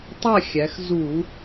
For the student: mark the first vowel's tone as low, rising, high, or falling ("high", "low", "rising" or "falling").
falling